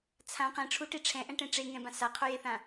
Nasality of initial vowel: nasal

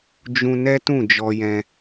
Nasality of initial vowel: nasal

